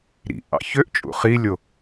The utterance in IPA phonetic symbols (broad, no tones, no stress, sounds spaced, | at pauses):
ɾ ḭ ʔ ɑ̰ ç ø ʔ t͡ʃʼ ṵ χ i lʲ o